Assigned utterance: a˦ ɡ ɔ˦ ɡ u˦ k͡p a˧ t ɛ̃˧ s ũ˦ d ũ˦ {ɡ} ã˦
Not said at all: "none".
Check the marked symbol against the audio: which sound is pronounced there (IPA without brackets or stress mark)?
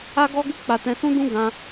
ɡ